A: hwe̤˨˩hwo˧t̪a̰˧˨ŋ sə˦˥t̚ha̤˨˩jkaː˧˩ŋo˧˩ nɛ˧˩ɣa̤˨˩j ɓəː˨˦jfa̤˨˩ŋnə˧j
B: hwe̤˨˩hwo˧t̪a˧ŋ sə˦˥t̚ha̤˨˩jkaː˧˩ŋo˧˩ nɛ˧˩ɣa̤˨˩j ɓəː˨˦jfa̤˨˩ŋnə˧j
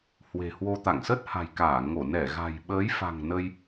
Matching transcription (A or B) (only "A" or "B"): A